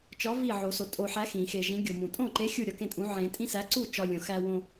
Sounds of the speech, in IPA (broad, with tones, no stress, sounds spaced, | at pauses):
t͡ʃ ɒ˨˥ v i˥˩ ʕ o˨˩˦ s o˨ tʼ o˨ ħ æ˨˥ x ĩ˨˩˦ x e˨ ʒ ĩ˨˥ ɡʲ o˨ m ũ˨˩˦ tʼ õ˥˩ ǃ e˨˥ xʲ u˥˩ ɾʲ ɒ˥˩ k ẽ˥˩ tʼ ũ˨˥ ʕ ẽ˨˩˦ tʼ ĩ˦ s æ˨˥ ǀ u˥˩ t͡ʃ ɒ˦ lʲ õ˨ x æ˦ w õ˦